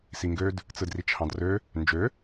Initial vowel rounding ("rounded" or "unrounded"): unrounded